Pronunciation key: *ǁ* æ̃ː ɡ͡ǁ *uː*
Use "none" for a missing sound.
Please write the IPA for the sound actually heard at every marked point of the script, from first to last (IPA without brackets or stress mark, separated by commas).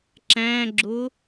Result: ǁ, ʊː